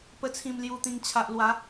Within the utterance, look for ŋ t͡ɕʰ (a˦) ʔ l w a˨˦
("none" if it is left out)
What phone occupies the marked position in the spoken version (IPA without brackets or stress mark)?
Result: a˨